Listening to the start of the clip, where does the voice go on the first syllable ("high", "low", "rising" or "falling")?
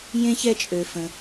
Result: high